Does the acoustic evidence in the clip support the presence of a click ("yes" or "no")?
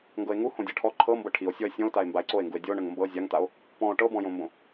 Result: yes